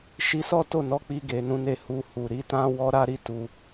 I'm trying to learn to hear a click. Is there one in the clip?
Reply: no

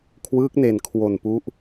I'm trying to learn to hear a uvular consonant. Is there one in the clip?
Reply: no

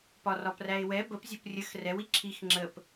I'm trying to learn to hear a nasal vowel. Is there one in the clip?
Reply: no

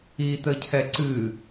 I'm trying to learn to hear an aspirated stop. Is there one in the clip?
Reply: yes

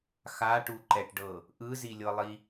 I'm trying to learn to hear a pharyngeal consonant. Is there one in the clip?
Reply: no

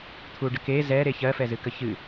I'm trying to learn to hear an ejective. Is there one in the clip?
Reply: no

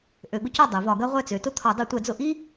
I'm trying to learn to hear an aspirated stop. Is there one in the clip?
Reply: yes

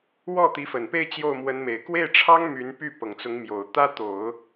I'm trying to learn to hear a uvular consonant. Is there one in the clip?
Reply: no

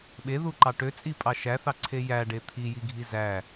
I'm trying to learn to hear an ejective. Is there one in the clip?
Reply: yes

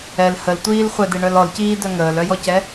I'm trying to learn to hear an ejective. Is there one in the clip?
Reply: no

